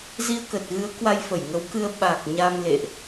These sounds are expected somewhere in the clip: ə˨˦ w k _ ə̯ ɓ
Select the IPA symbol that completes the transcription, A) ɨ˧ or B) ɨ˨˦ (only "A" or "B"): A